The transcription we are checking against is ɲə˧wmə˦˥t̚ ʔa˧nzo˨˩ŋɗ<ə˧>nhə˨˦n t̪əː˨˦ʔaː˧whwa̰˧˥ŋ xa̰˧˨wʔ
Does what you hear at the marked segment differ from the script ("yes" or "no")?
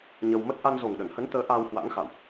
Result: yes